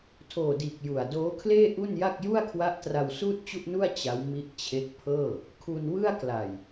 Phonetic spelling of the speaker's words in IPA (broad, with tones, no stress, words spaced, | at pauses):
tʰoː˨˩diː˨˩k̚ ju˨˩a̯ doː˦˥kʰleː˥˩ʔu˥˩nja˥˩k̚ ju˥˩a̯kʰwa˦˥ʔtra˧w suː˥˩t̚t͡ɕu˥˩ʔnu˥˩a̯ t͡ɕa˦˥wmi˦˥ʔt͡ɕʰe˦˥k̚ pʰɤː˥˩ | kʰu˧nwɯ˥˩a̯ kla˨˩j